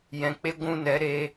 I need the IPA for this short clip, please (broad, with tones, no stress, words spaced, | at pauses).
jɛ̃˨k͡pe˦ ɡʷũ˦˨nɛ˨˦ɾe˧